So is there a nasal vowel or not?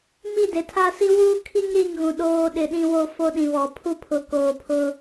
yes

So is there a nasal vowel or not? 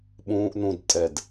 yes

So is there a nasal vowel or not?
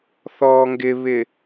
no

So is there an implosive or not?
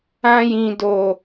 no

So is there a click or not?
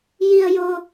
no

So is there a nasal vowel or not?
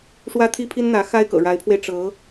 no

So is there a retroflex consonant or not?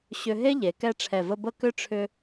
yes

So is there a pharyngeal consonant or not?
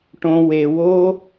no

